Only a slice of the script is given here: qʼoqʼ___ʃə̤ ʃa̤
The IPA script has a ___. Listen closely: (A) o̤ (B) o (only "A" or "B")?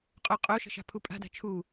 B